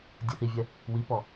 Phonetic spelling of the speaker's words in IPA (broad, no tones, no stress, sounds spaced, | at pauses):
dʲ e θ i vʲ ɛ | w i p ɔ